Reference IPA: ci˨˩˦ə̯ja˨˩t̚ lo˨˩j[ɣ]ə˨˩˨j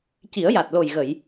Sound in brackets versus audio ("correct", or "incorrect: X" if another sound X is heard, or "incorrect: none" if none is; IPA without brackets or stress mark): correct